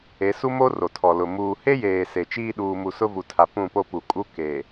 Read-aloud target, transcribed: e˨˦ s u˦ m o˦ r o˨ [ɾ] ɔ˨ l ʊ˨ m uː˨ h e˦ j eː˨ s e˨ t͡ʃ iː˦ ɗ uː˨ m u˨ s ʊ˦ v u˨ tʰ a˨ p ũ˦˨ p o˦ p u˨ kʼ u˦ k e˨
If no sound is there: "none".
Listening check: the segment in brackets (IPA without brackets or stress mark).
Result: tʰ